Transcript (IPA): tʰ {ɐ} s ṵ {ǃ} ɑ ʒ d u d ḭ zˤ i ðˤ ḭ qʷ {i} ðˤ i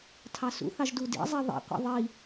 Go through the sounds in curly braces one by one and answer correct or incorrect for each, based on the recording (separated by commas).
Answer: incorrect, incorrect, incorrect